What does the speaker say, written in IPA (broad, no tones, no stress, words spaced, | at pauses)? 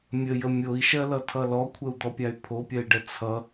mʲəjə mʲoi̯ʃɜlʌtʰʌ lɔkʷʰəu̯d̪ɔpʲay̯ pʰopʲɜi̯ɖɛ t͡sʰʌ